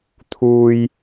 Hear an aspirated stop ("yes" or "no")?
yes